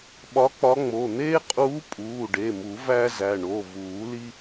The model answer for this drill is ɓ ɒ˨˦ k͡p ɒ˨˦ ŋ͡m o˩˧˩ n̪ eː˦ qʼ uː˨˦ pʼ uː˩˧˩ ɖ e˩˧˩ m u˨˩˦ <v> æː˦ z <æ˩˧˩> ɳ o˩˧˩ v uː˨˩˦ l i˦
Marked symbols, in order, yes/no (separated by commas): yes, yes